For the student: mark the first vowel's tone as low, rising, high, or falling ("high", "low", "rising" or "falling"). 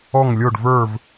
falling